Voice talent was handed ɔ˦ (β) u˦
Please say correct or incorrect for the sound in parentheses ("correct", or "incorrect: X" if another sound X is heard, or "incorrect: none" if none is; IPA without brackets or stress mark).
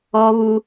correct